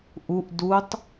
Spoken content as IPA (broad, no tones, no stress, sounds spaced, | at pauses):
ʔ u ʔ d u tˤ